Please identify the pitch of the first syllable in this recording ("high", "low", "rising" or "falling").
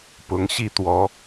rising